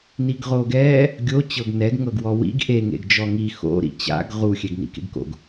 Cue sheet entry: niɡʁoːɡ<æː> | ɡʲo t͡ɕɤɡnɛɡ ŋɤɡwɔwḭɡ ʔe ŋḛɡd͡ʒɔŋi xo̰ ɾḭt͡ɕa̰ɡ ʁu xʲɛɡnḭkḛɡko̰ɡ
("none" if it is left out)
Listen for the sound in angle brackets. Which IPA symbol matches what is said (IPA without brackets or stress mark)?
ɛː